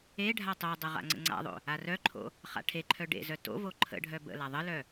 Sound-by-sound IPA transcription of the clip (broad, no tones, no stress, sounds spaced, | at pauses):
e ɖʱ a tˤ o dˤ ə ʁ a̰ ŋ͡ǀ ə̰ ŋ͡ǀ a̰ ðˤ o̰ | a r œ ǃʰ o̰ | χ a̰ ʈʰ e ǃʰ œ ɖ ḛ z œ t o̰ v o ǃʰ ə̰ ɖʱ œ b ə̰ l a ðˤ ə l œ